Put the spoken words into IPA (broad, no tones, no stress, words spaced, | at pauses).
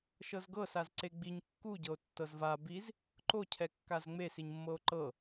ʃɤzɡɤ sazǀeɡ͡biɲ kːuɟɤo̯ tːɤzva biz | ǃocʰɛ kːazŋ͡mesiɲmːɤo̯ ǃɤ